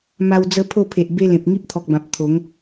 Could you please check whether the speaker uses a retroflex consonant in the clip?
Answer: no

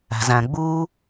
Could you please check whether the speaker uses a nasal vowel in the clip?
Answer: yes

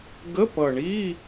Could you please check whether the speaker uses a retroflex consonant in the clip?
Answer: yes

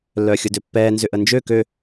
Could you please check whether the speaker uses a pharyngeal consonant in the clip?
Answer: no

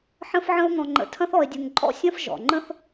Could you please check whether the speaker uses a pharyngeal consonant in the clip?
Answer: yes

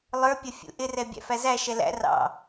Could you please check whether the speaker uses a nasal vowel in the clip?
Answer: no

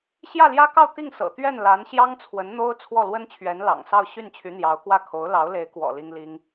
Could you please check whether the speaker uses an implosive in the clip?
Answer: no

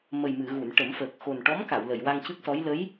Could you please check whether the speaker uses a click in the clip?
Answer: no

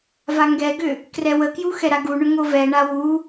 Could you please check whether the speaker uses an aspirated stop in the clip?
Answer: no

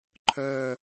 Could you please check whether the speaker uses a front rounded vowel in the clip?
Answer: yes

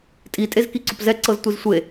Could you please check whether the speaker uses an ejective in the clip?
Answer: yes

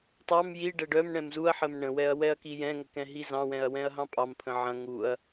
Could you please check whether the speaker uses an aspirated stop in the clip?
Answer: yes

